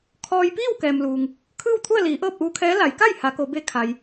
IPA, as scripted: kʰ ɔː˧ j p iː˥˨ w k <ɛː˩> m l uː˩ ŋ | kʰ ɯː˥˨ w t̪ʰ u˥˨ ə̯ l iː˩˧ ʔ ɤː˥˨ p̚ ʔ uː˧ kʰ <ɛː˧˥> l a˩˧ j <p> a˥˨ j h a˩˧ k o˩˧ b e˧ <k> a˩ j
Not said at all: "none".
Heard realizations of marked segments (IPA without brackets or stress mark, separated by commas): ɛː˩, ɛː˧˥, k, kʰ